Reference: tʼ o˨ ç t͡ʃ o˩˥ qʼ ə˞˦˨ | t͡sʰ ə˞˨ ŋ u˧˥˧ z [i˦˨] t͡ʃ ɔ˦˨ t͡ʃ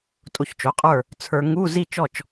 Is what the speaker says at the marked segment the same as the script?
yes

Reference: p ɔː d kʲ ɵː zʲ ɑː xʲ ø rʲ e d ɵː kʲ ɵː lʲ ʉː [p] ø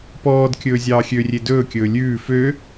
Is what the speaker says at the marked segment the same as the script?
no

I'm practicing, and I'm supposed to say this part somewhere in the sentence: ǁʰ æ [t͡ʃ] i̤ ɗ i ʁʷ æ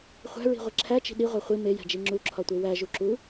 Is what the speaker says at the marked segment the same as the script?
yes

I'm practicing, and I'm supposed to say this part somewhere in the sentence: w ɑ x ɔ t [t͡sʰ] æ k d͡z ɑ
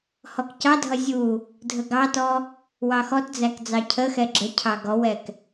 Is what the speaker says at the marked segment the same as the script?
no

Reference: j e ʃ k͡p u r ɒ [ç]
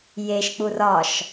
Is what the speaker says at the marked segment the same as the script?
no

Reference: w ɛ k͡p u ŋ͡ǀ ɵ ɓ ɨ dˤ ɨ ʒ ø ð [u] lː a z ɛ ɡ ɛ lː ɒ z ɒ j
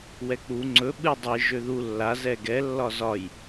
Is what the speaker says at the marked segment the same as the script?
yes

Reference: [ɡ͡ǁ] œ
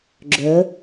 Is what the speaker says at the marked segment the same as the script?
yes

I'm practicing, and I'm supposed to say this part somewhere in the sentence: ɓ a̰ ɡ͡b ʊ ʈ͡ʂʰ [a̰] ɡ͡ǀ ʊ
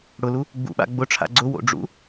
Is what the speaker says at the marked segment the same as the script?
yes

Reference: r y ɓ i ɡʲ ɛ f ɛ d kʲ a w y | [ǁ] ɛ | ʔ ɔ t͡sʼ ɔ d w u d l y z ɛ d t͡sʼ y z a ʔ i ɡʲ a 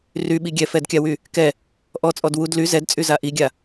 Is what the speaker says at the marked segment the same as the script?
no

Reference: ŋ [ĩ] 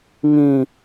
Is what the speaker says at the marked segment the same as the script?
yes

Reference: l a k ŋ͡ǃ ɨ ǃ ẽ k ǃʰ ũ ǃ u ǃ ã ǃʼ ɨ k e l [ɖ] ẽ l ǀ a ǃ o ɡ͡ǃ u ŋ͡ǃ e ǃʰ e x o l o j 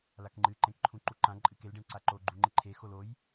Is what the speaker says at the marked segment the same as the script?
yes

